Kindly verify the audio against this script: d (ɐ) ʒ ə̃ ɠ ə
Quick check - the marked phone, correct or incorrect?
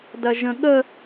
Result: correct